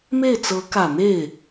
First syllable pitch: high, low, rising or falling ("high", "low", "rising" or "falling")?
falling